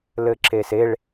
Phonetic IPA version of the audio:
l ɘ ǁ e s e ɭ

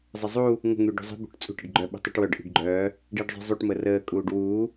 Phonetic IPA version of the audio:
zˤ ə zˤ u | ŋ ə̤ ŋ yː ɖ ṳ zˤ i̤ b ṳ ʈ t͡sʼ ṳ ʈ ə ɖ ɡ͡ǃ œ ɓ ə̤ tˤ y ʈ w œ ɖ ʔ i̤ ɖ ɡ͡ǃ œː | ɖ iː ɖ zˤ i̤ zˤ u ʈ m ə r əː kʼ uː ɖ w uː

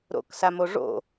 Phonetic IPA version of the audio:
ɾ o̰ k s a m o ʐ o̰

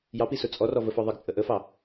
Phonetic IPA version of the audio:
j ɑ p i s ʊ t͡sʼ ɔ r ɔ v ə f ɔ ðˤ ə ɡ t͡sʼ ə ʔ ə f ɑ

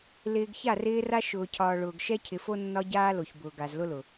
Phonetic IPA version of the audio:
l ɪː˨ ɡ ç a˦˨ r ɪː˦ r a˦ ʃ ʊː˨ cʰ ɒː˨ ɭ ʊː˨ ɡ ʃ ɛ˦ cʰ ɪ˨ f o˦ nː ɒ˦ ɟ aː˦ l o˨ ç b ʊː˨ ɡ a˨ z l ʊ˦ l ʊ˨

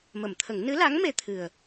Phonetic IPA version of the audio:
m ə˨˩˨ m t̪ʰ ə˨˩˦ ŋ n ɨ˧˥ l a˧˥ ŋ m e˧ t̪ʰ ɨ˨˩ ə̯

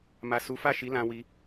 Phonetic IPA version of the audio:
m a˨ s u˨˦ f a˦˨ ʃ i˨˦ l ã˧ w i˧

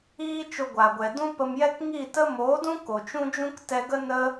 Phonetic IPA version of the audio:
iː˦ t͡ʃ o˧ ɡʷ a˨ ɡʷ ɛ˨ d ũ˦ p ə˧ m j ɛ˦ k ŋ i˦˨ t ə˦ m oː˨˦ d ũ˦ k o˨ t͡ʃ ũ˦ d͡ʒ ũ˦ k t ɛ˧ ɡ ə˦ n ə˦

